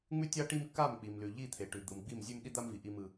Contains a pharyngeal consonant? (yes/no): no